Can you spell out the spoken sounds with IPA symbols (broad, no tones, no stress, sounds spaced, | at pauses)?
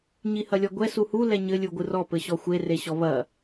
ɲ i h ɐ lʲ ɔ ɡʷ ɛ s u h u l ɛ ɲ ɘ lʲ u ɡʷ ɨ r ɔ p ɘ ɕ ɔ xʷ e r e ɕ ɔ β ɐ